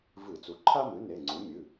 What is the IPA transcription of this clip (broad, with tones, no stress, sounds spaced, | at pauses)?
v ɨ˧˩˧ t͡s u˩˥ ǃʰ a˥ m ɨ˩˥ n e˩˧˩ ŋ͡ǀ u˩˥ mʲ ɨ˩˧˩